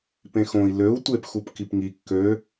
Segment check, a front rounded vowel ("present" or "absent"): present